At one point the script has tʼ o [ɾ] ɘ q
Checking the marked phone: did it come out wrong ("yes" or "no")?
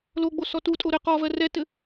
no